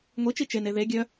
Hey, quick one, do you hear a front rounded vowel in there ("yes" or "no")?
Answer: yes